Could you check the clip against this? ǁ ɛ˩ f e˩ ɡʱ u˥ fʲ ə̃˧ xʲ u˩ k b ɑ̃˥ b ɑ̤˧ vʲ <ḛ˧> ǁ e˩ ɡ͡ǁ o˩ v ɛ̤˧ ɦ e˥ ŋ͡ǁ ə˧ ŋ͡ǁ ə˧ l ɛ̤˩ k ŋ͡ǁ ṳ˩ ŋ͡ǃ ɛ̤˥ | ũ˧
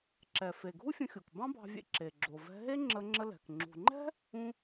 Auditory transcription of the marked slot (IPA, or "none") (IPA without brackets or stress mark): ḛ˧